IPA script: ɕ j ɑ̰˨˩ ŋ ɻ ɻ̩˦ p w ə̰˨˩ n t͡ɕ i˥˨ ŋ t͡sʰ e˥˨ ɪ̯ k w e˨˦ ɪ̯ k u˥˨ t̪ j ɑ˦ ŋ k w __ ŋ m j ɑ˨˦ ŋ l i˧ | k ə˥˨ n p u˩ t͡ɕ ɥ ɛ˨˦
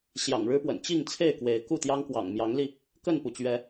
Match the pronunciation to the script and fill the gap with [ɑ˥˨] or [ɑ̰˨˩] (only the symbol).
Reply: ɑ̰˨˩